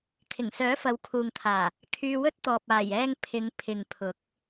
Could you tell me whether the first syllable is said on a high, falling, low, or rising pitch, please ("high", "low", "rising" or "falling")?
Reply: low